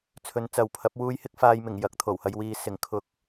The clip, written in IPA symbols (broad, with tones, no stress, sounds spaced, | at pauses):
t͡sʰ ɵ˨˧ n t͡s ɐ˨ w pʰ ɐ˨˥ p̚ w uː˧ j h ɪ˧ k̚ f aː˨ j m ɪ˨˩ ŋ j ɐ˨˥ k̚ t̪ʰ o˨˩ w h ɐ˧ j w iː˨ s ɪ˨˩ ŋ kʰ ʊ˨˥ k̚